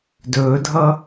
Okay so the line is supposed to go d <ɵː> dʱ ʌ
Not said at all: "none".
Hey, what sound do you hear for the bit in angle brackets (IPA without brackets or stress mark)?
ɵː